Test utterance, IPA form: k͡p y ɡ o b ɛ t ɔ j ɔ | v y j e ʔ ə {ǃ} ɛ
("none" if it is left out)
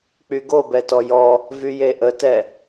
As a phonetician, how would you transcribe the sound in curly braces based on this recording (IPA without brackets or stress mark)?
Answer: t